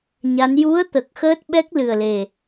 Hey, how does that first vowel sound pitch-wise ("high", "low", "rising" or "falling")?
rising